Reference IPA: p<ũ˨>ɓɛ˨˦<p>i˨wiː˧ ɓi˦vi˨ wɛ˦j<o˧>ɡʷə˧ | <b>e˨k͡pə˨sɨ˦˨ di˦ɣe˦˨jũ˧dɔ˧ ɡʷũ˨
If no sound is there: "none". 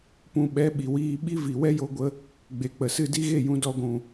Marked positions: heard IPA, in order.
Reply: ũ˧, ɓ, o˧, ɡ͡b

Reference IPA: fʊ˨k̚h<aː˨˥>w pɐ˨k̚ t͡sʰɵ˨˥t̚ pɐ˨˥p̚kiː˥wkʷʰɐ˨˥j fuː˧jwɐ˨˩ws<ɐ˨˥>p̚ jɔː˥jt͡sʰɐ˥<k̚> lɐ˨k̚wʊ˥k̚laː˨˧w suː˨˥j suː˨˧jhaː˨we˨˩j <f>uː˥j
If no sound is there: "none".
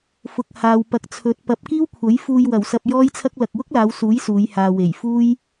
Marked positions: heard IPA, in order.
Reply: aː˨, ɐ˧, k̚, f

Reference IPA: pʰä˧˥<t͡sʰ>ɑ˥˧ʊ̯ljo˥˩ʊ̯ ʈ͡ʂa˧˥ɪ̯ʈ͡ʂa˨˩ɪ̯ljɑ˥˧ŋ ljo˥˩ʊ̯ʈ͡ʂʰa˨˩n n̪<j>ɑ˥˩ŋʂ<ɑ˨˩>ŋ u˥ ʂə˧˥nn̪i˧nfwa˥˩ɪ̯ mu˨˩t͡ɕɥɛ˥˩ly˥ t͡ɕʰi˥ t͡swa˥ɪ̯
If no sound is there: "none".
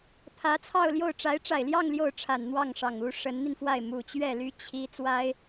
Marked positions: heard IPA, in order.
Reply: t͡sʰ, w, ɑ˨˩

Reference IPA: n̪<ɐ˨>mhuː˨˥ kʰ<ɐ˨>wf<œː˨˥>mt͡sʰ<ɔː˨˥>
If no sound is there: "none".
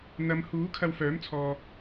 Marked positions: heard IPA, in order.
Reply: ɐ˨˧, ɐ˧, œː˨˥, ɔː˨

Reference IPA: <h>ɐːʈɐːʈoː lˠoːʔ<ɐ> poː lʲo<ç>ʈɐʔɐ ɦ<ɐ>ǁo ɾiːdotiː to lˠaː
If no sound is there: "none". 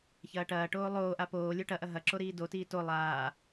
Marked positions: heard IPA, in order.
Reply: ç, a, none, ɐ

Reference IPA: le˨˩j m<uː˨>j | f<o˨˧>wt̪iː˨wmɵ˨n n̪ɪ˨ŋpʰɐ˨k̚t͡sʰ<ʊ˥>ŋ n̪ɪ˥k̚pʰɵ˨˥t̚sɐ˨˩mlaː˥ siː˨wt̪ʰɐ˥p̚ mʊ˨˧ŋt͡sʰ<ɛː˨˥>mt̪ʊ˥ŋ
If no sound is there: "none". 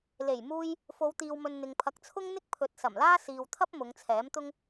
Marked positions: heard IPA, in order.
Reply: uː˧, o˨˧, ʊ˥, ɛː˨˥

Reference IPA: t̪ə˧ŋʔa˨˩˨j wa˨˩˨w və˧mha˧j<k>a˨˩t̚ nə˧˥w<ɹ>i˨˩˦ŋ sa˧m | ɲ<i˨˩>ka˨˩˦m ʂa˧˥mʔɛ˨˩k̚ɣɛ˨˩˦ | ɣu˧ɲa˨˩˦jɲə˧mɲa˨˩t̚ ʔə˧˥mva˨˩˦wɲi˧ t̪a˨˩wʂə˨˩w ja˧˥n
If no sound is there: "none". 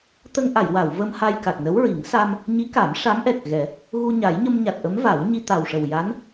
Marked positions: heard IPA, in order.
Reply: k, ɹ, i˧˥

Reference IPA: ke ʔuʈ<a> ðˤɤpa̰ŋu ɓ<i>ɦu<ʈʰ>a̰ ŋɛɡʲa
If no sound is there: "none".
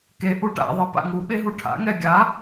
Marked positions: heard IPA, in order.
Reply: a̰, e, ʈʰ

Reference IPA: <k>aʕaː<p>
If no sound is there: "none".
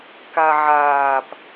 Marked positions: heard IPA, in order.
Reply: k, p

